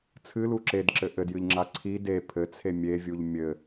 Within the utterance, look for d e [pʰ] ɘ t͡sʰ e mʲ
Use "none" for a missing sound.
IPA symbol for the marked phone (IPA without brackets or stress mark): pʰ